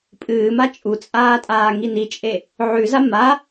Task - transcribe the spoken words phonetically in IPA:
pʼ ɨː m a t͡ʃʼ u t͡sʼ aː tʼ aː ŋ i n i t͡ʃʼ e | ʕ ʉ z a m a

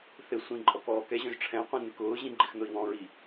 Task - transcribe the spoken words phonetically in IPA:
θ ɪ sʷ ĩ ǃʼ ɔ k ɔː k ɛ ʑ ɔ̃ ʒ ʈ͡ʂʰ ɛ̃ qʷ ĩ n ɪ k ʊː ʑ ĩ ɡ͡ǃ ɪ x n ʊ i̯ w ɔ̃ ɹ i

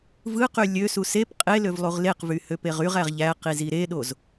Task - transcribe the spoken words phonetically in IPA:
v ɯ q y lʲ ø s u s e p qʼ e l ø v lˠ u ʁ l e q v y h ø p e ʁ y ʁ æ ʁ ʎ æ q i z i ɾ e ɗ o z

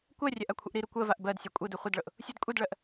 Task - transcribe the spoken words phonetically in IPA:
kʷ ɜ rʲ ɛ ʔ a kʷʰ ə ʔ ɾ i ɾ u kʷ ɜ v a ʔ b ɜ d sʲ a kʷʼ ɤ d u χʷ ə d ɭ ɤ ʔ | sʲ u d kʷʼ e d ɭ ɜ ʔ

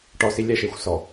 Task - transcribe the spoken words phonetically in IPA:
ʈ ɔ s i lʲ a ʃ e xʷ s ɔ

